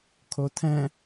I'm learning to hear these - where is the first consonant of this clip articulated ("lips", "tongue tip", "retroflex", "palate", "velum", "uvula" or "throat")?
velum